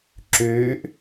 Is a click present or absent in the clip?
present